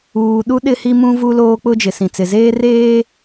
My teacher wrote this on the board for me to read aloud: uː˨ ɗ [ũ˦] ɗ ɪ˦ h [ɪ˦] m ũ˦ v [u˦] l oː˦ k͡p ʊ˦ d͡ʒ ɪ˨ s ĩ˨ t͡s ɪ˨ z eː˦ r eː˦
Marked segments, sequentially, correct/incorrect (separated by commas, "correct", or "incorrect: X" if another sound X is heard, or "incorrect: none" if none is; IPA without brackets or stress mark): incorrect: u˦, incorrect: i˦, correct